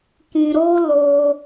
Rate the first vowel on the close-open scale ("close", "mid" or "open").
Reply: close